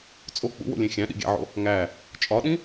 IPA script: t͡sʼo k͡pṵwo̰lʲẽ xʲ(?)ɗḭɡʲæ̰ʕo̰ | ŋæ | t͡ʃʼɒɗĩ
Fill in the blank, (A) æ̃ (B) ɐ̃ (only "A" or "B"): A